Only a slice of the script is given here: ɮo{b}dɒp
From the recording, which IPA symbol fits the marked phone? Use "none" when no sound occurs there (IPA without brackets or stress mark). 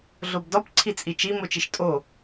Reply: b